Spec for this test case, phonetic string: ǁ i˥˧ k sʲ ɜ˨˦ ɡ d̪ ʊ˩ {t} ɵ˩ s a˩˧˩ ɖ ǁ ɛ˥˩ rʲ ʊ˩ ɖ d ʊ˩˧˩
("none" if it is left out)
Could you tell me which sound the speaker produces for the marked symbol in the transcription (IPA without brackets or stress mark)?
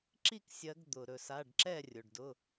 ɾ